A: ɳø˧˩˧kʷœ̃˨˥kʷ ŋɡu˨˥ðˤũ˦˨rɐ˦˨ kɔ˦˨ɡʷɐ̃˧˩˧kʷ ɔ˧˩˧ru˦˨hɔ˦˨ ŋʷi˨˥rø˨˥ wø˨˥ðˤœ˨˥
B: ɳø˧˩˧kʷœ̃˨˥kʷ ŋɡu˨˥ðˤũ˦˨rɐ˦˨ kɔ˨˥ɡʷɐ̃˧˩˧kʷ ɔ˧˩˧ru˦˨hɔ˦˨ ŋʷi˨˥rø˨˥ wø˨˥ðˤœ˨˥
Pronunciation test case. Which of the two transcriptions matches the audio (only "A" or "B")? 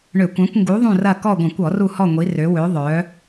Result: A